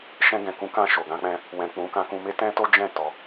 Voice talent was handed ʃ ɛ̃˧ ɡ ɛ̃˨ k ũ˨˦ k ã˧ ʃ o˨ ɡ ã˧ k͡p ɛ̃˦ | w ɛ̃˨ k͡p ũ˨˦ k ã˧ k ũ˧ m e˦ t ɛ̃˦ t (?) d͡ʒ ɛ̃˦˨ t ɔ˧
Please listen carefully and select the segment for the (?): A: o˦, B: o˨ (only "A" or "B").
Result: A